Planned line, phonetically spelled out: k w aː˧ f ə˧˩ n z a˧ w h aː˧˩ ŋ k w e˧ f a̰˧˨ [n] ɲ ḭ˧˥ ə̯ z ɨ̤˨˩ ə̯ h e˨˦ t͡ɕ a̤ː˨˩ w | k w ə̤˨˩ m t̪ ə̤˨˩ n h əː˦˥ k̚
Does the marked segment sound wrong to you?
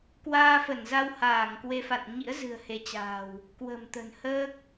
no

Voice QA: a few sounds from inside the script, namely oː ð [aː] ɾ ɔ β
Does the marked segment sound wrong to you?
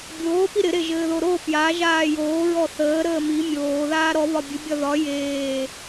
no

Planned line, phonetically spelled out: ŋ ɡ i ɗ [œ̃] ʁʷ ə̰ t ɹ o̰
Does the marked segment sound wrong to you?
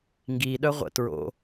yes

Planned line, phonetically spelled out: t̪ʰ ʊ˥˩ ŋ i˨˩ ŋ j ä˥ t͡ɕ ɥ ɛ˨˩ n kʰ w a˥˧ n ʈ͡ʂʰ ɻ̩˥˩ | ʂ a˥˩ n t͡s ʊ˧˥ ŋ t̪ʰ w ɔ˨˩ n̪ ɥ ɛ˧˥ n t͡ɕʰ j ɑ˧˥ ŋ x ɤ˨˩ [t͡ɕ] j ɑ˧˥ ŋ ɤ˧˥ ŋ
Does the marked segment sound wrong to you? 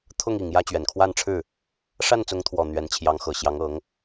yes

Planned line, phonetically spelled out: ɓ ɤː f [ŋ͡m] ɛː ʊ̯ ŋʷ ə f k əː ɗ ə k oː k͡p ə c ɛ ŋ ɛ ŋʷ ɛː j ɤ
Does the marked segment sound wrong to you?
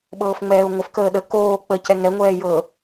no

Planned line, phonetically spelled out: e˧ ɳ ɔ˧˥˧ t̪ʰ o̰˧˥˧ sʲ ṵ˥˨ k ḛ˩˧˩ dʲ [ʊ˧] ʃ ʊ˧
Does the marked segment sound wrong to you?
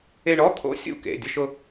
no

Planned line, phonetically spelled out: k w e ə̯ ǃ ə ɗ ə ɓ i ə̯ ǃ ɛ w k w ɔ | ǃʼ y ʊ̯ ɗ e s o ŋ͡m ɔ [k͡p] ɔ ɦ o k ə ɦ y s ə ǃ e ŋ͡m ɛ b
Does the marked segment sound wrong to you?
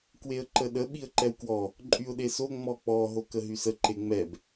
no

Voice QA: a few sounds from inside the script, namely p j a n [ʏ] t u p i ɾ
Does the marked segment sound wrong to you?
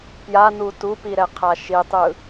yes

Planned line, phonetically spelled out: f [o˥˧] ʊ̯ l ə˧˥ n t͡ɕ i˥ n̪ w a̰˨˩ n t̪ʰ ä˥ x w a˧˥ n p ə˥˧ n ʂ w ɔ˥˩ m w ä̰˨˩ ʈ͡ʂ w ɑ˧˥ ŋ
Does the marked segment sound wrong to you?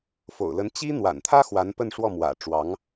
yes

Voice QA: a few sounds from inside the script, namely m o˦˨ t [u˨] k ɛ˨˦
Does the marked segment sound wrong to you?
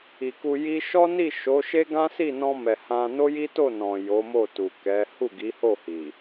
no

